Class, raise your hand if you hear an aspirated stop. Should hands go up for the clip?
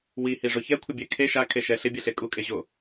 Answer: yes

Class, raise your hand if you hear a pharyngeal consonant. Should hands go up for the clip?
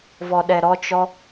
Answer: no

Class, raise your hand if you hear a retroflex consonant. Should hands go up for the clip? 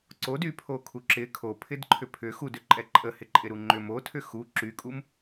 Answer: no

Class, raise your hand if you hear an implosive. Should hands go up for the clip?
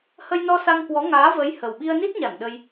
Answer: yes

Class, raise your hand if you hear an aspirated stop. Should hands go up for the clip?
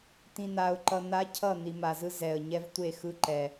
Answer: yes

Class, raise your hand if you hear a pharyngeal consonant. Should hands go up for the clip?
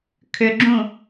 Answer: no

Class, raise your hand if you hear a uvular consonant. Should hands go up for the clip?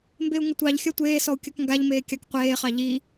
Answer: yes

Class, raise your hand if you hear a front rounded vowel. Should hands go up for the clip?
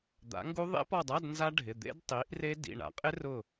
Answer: no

